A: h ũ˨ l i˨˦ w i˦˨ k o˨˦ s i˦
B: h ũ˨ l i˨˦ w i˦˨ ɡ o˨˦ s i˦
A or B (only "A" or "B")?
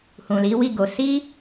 B